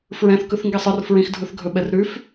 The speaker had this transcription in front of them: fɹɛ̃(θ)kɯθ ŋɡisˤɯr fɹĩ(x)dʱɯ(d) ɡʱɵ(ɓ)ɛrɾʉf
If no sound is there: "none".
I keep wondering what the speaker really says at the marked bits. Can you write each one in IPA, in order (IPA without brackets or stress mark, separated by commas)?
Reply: θ, x, θ, ɓ